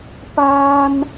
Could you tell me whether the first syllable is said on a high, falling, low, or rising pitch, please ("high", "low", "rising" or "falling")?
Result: high